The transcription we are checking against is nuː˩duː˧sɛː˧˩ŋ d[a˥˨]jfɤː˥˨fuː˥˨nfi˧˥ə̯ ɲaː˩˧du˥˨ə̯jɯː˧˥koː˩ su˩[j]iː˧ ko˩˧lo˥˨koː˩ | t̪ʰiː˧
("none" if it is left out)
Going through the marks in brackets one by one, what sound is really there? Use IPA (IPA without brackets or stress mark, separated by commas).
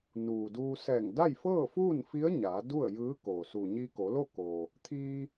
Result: a˥˨, ɲ